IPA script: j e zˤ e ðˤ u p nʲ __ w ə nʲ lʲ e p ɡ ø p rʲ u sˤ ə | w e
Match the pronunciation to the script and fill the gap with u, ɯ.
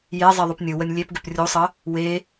ɯ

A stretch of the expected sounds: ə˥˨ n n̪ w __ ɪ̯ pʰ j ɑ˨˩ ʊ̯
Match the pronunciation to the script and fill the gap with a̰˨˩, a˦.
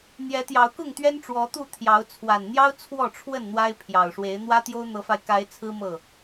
a˦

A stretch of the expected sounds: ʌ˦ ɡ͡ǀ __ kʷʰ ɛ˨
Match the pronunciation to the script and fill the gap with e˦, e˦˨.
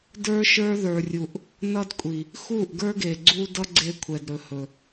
e˦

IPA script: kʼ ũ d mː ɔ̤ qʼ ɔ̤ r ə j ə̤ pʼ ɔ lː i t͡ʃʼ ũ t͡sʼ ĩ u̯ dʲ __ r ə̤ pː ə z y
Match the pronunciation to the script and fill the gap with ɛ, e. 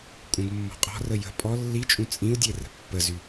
e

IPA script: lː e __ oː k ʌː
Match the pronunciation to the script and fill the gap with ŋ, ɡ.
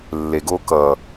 ɡ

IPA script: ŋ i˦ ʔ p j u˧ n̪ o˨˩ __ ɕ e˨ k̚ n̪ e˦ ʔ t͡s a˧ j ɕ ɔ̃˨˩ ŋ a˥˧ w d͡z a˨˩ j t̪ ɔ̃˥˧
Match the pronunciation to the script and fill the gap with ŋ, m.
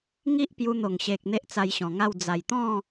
ŋ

